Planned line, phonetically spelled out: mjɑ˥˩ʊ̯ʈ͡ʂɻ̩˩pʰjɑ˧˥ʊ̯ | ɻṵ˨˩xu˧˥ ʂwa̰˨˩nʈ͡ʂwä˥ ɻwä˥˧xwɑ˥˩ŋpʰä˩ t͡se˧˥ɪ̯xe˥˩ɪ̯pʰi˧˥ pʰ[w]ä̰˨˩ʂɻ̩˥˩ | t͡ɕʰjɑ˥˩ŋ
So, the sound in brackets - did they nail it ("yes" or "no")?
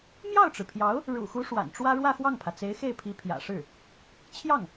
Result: no